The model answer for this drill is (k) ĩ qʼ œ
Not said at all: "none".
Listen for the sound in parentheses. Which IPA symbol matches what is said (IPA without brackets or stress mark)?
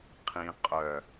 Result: qʰ